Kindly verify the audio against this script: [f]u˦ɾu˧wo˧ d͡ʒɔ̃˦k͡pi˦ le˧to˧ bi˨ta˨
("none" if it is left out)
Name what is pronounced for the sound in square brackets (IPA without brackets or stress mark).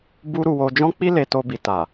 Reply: b